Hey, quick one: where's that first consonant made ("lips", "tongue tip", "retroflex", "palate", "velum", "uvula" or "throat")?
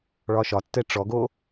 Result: retroflex